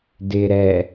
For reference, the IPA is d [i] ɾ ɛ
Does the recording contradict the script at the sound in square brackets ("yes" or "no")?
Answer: yes